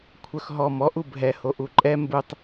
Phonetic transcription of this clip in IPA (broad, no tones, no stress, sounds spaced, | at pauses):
kʷʰ œ x ɦ ɔ m ɔ ʔ u bʱ ɛ h o ʔ u ǃʼ ɛ m b u tˤ